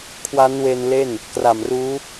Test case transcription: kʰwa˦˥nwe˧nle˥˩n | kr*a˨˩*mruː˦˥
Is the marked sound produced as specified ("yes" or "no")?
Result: yes